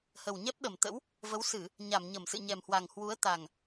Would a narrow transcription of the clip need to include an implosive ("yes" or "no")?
yes